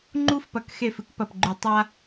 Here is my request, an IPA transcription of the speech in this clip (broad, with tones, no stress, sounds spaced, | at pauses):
ŋ͡ǃ u˦ f p ɐ˨ k x e˦˨ f ɨ˦ k p ɐ˨ p ɡ͡ǃ ʉ˨ tˤ a˦